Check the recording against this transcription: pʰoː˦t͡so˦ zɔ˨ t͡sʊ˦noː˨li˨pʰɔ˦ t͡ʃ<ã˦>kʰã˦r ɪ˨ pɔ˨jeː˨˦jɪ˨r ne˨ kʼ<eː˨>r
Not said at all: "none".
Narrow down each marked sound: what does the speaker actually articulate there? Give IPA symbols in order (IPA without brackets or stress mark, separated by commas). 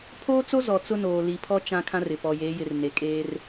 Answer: ã˦, eː˦